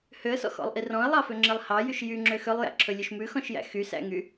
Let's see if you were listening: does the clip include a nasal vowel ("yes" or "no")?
yes